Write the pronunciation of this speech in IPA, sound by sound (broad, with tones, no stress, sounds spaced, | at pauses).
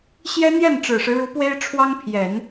ɕ j ɛ˥ n̪ j ɛ˥˩ n ʈ͡ʂ ɻ̩˨˩ ʂ ɻ̩˦ ɻ u˧˥ p w e˥ ɪ̯ ʈ͡ʂʰ w ɑ˥ ŋ pʰ j ɛ˨˩˦ n